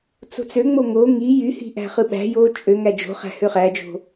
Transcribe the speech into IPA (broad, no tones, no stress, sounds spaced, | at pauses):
t͡s o̤ t͡s ø ŋ͡m o ŋ o ŋ i j y h i̤ ʔ æ̤ χ ɯ ɓ æ̤ j o t͡ʃʼ ø ŋ æ d͡ʒ o̤ χ æ̤ h ø χ æ d͡ʒ o̤